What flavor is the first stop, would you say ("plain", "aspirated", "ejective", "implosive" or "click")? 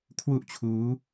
aspirated